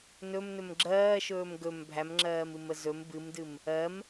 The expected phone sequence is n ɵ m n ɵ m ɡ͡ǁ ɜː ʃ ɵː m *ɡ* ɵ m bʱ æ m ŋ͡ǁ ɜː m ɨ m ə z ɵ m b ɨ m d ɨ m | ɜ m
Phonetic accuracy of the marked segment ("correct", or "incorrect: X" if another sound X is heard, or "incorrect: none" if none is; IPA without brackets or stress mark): correct